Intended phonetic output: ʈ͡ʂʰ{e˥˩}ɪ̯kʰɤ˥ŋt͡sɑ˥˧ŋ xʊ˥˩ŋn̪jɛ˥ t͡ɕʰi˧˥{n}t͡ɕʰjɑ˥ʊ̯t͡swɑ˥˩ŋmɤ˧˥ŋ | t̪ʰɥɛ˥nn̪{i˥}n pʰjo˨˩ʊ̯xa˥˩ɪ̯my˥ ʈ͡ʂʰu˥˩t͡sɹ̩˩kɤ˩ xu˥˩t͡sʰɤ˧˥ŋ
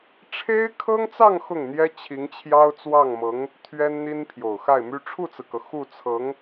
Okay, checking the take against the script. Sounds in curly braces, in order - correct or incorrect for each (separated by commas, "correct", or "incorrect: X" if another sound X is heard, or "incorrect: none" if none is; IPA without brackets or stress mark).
incorrect: e˥, incorrect: ŋ, correct